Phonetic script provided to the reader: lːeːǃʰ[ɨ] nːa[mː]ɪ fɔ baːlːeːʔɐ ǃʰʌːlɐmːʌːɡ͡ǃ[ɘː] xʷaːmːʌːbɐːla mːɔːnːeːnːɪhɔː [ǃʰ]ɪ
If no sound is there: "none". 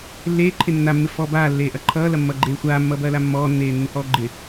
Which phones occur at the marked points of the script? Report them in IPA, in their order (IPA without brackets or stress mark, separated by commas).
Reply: e, mː, eː, ɡ͡ǃ